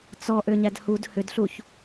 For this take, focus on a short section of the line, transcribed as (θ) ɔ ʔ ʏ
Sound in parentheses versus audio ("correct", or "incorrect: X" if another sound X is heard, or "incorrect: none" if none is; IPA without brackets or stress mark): incorrect: t͡s